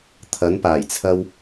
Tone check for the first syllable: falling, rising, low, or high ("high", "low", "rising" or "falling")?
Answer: rising